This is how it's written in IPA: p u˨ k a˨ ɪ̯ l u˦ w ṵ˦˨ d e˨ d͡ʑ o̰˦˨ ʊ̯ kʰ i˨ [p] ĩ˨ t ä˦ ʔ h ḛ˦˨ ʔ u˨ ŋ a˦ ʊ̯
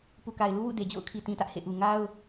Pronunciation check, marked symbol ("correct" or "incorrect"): incorrect